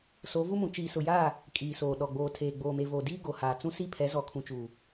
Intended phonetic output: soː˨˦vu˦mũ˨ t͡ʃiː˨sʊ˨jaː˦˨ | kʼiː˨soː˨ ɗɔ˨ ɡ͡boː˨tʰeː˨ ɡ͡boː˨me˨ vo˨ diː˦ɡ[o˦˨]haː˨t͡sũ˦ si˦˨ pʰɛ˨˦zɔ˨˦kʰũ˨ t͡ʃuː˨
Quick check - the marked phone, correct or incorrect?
incorrect